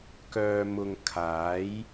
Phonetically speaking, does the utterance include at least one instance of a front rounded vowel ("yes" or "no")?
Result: yes